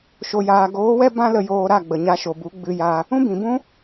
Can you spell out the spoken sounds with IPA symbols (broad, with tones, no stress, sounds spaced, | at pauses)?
ʃ o˧ j aː˧ ɡ oː˨˦ w ɛ˦ b ã˦ l ə˧ j oː˧ ɾ a˦˨ ɡ͡b ə˨ ɲ a˧ ʃ o˨ b u˨˦ ɡ͡b ɨ˧ j a˧ | ũ˦ b ĩ˨ b ũ˦